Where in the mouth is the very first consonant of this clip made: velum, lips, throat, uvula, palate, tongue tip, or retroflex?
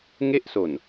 velum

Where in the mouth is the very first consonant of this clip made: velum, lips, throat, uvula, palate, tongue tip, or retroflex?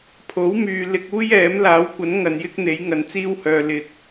lips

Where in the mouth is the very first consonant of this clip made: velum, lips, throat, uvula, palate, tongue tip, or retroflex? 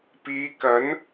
lips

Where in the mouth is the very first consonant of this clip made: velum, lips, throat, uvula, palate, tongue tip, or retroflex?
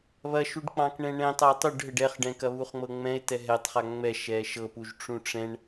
lips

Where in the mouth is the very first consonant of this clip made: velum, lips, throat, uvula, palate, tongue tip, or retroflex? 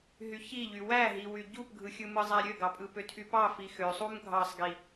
throat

